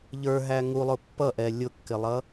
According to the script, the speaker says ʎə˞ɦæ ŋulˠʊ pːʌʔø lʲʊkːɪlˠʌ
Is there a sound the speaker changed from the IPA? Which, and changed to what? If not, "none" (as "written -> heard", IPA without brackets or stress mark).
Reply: ø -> ɛ